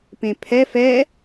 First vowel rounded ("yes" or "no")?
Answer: no